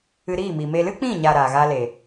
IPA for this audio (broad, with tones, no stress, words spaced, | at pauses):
ɨ˧ɾiː˦˨mi˨ me˧ lɨ˦k͡pĩ˦˨ɲa˨ ɾaː˨ɣaː˦le˨